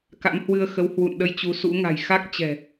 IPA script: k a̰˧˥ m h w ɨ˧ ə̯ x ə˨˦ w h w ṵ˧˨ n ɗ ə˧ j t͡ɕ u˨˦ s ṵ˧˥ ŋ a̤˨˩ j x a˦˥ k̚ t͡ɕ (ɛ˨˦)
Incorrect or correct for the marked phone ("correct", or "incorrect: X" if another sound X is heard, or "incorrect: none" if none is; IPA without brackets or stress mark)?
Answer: incorrect: ɛ̤˨˩